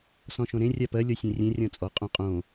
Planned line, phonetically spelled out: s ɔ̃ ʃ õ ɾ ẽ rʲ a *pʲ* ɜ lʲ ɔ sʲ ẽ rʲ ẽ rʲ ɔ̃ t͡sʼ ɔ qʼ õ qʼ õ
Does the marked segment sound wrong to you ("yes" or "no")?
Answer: yes